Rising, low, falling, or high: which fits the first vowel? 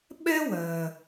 high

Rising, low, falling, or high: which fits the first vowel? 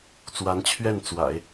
rising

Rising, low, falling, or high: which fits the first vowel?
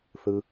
low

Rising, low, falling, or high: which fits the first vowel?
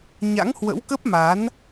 rising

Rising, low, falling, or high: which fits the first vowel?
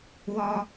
high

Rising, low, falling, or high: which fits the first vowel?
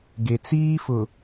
low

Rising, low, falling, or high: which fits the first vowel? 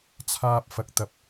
high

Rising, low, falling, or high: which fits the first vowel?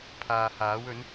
low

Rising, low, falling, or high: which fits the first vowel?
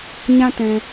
high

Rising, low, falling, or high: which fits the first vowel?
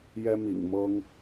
high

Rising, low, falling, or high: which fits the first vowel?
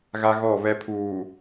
high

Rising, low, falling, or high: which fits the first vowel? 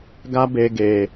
high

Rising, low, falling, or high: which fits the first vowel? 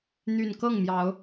low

